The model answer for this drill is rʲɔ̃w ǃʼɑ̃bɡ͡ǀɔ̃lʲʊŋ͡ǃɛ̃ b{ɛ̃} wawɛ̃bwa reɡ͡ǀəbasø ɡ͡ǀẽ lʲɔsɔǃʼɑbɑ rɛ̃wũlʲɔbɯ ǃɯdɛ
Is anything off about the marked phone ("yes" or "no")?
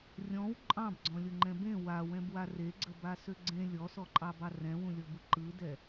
yes